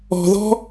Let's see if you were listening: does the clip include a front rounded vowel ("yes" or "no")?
no